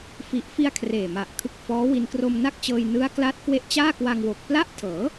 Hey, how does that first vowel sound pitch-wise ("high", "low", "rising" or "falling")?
low